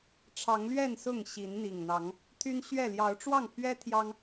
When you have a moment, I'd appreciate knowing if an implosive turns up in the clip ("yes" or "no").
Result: no